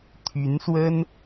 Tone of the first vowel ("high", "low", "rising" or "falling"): rising